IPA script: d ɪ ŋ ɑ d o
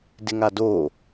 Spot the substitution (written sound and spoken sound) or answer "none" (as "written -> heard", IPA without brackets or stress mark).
ɑ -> a